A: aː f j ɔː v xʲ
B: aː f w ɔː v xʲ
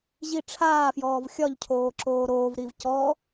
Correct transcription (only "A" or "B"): A